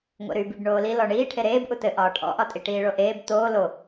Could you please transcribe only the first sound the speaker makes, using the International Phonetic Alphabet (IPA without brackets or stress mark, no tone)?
ŋʷ